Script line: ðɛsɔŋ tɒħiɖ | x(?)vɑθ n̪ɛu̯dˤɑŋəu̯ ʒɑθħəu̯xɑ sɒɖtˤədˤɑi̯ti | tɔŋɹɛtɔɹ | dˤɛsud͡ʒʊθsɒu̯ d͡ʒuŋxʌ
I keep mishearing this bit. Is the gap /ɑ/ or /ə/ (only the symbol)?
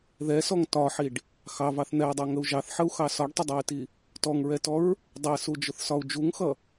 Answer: ɑ